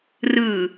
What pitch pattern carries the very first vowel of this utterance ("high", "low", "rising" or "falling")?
low